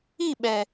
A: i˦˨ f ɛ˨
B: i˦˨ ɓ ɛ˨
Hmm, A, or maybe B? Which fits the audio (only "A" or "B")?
B